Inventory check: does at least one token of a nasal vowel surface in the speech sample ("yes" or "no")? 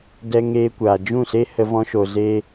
yes